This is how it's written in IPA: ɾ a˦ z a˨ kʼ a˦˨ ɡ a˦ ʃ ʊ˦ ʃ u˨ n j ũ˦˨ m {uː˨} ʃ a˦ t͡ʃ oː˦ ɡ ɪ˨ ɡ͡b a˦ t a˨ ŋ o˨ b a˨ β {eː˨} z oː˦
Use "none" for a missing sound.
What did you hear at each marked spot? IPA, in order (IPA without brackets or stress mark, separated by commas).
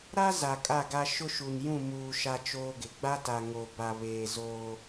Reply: uː˨, eː˨